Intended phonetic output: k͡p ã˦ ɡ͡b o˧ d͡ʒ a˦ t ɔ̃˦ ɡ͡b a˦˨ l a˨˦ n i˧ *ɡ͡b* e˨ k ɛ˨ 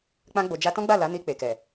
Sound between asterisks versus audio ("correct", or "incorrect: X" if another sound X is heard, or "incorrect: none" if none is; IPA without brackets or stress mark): incorrect: k͡p